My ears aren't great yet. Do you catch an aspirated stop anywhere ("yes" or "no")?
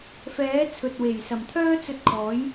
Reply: yes